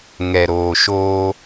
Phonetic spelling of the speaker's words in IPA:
ŋ ɛ˨ ɾ oː˨ ʃ oː˦

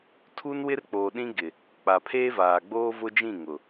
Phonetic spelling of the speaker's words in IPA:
tʰ u˦ n w ɪ˦ r k͡p oː˨ ɗ ĩ˦ ɡ ɪ˨ | k͡p a˨ pʰ eː˦ v aː˨ ɡ͡b oː˦ v ʊ˦ d͡ʒ ĩ˦˨ ŋ ʊ˨

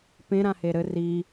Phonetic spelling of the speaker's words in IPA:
p ẽ ɾ ã h e ɾ ɘ r i

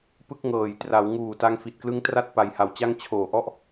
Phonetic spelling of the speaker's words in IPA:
p ɯ˥˩ k̚ ŋ ɤː˨˩ j t r a˩˦ w ŋ uː˨˩ t a˧ ŋ f i˨˩ t̚ k l ɯ˦˥ ŋ t r a˥˩ t̚ p a˨˩ j h a˨˩ w t͡ɕ a˥˩ ŋ t͡ɕʰ oː˨˩ ʔ ɔ˥˩ ʔ

